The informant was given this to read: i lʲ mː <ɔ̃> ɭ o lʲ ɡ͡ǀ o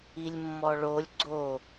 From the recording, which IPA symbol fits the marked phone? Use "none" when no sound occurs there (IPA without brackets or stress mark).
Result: ɔ